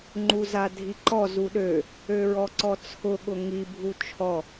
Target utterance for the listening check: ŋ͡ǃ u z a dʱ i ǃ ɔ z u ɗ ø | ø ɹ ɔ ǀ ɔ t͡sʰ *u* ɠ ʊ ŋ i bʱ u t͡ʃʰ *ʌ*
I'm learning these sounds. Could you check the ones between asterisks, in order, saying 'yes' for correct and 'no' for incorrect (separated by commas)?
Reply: no, no